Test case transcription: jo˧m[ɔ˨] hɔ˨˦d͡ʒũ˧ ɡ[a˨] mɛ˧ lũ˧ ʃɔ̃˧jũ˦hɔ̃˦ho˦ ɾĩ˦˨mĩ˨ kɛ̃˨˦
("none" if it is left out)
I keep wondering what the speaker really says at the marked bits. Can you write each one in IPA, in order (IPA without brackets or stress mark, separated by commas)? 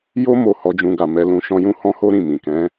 o˨, a˨